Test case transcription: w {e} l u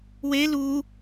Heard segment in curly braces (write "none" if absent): e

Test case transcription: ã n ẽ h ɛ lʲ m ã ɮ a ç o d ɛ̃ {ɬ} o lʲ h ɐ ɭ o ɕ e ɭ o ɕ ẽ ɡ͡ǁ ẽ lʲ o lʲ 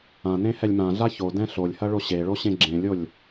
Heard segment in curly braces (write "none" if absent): ɬ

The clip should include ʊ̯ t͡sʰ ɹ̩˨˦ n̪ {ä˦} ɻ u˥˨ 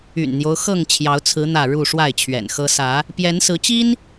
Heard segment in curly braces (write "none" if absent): ä˥˨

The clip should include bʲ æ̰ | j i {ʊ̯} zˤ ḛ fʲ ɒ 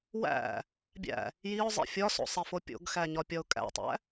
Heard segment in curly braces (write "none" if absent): ʊ̯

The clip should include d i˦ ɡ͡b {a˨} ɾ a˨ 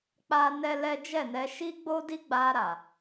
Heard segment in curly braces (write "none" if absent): a˧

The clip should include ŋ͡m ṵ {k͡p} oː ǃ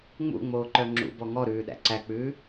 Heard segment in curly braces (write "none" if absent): ŋ͡m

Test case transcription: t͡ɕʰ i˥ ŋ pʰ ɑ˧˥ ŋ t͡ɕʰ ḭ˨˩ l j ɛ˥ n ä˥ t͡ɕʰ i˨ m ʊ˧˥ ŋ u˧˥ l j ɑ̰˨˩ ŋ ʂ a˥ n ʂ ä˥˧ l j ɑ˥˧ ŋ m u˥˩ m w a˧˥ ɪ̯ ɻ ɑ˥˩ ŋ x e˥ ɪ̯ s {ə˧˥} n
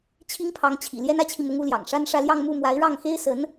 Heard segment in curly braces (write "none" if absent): ə˧˥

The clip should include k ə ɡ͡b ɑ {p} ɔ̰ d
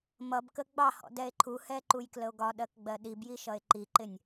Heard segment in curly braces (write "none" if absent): h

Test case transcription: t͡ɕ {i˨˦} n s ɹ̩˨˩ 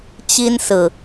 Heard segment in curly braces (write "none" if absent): i˦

